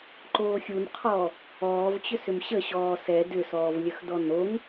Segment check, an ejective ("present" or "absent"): absent